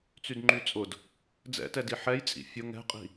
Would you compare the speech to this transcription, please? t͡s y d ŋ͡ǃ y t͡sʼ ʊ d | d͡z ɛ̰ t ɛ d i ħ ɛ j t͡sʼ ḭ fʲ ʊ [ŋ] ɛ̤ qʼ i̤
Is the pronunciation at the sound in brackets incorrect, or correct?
correct